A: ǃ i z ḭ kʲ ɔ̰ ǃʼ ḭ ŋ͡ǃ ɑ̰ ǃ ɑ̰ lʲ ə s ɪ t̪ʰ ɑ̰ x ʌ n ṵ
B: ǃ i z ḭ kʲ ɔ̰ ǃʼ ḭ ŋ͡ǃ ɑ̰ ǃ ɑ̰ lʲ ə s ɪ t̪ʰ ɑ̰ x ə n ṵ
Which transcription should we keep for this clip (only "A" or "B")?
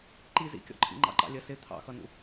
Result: A